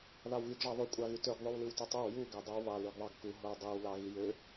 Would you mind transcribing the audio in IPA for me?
ð ɑ w ɣ y ɡ ʐ ɑ ðˤ y kʷʼ ɑ ɣ y t ø ɡ ðˤ y w l ɯ w t ø tˤ o w j u ɡ æ dˤ y w β ɑ l y ɡ ðˤ ɑ ɡ k u ɦ o w dˤ i w l ɑ ɣ i j ø

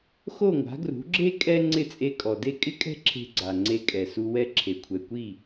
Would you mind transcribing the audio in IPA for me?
x o˥˩ ŋʷ a̤˩˥ ɡ r ṳ˩˥ ɡ͡ǁ e˥ kʼ ɛ˥ ŋ͡ǀ ɪ˥˩ t͡sʼ e˧ kʼ ɔ˩ d e˥ kʼ ɪ˥ kʼ ɛ̤˥ ǁʰ e̤˧ ɡ͡ǀ a˩ ŋ͡ǀ e˧ kʼ ɛ˩ s u˧ w ɛ˧ ǁʰ e˩ kʷʰ ɛ˩ kʷ i˥˩

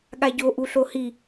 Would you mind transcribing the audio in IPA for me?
ɠ a ɟ o ʔ u ɬ o h i

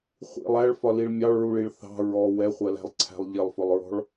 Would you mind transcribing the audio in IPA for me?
χʷ ḭ lˠ æ ɭ f ɒ l i ɭ mʲ ɑ ɭ ɹ u ɭ i ɭ θ ɑ̤ ɹ ɔ w ɛ χʷ ɜ l æ̤ lˠ ǀʰ æ̤ lˠ ʎ ɪ lˠ f ʊ lˠ ɹ ɔ̤ ɭ

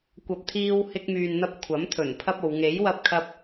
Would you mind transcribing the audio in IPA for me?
kʷ ɐ˨ p̚ t̪ʰ iː˧ w h ɪ˧ k̚ m yː˨ n n̪ ɐ˧ p̚ kʷʰ ɐ˨˥ m t̪ʰ ɵ˨˩ n pʰ ɐ˥ p̚ o˨˧ w ŋ e˨˥ j w ɐ˧ p̚ kʰ ɐ˧ p̚

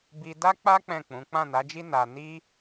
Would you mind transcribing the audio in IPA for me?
b i˧ d a˦ k͡p a˦ k͡p ɛ̃˦˨ k͡p ũ˨˦ k͡p ã˦˨ n a˨˦ d͡ʒ i˦ n a˧ n i˦

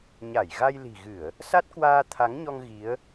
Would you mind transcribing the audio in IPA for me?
ɲ a˧˩ j ɣ a˧ j l i̤˨˩ ɣ ɨ˧˩˨ ə̯ | s a˦˥ t̚ k w aː˧ t̪ʰ a˨˦ ŋ ɲ ɔ˧ ŋ ɣ i˨˦ ə̯

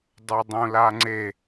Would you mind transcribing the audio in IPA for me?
dˤ u dˤ ũ l a ŋ͡ǀ e

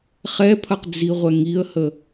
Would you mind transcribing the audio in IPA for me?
χ ɛ pʰ ɐ q d͡z i ʁʷ ɛ ŋ i ə̯ h ə

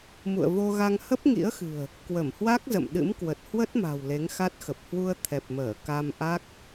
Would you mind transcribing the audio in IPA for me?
m ṵ˧˨ ə̯ v o˧ ɣ a˧ ŋ h ə˦˥ p̚ ŋ ḭ˧˥ ə̯ x ɨ̤˨˩ ə̯ | k w ə˧˩ m h w a˦˥ k̚ z ə̰˧˨ m ɗ ɨ̰˧˥ m k w ə˨˩ t̚ h w ə˦˥ t̚ m a̤˨˩ w l e˨˦ ŋ x a˦˥ t̚ x ə˨˩ p̚ h w u˧ ə̯ t̪ʰ ɛ˨˩ p̚ m əː˧˩ k a˧ m ʔ a˦˥ k̚

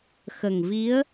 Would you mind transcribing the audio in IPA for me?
x ə˨˩ ŋ v i˧˥ ə̯

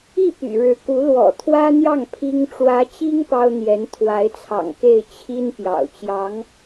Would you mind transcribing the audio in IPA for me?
i˥˩ p y̰˨˩ ɻ ɻ̩˧˥ k u˧˥ l w ɔ̰˨˩ t̪ʰ w ä˥ n̪ j ɑ˥˩ ŋ pʰ i˥ ŋ ʈ͡ʂ w ä˧˥ t͡ɕ i˥ ŋ p ɑ˥ ʊ̯ n̪ j ɛ˧˥ n t̪ʰ w a˧˥ ɪ̯ t͡sʰ ɑ̰˨˩ ŋ k e˥˩ ɪ̯ t͡ɕʰ i˥ n p j ɑ̰˨˩ ʊ̯ t͡ɕ j ɑ˧˥ ŋ

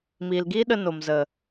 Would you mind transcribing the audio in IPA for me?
m iː˨ l ɡ iː˦ ɗ ə˧ n o˨ m z ə˨

